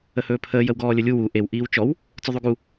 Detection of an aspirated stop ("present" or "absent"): present